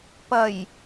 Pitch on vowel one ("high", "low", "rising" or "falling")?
low